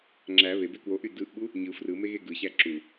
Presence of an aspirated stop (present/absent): absent